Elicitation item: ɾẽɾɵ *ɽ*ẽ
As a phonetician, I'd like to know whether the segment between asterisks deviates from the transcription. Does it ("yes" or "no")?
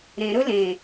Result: yes